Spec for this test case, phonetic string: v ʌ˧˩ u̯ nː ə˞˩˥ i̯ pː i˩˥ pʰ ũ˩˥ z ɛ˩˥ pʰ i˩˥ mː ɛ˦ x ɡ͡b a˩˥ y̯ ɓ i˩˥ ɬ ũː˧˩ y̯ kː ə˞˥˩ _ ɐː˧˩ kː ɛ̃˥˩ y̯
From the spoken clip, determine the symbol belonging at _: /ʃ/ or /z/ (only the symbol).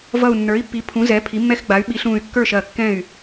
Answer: ʃ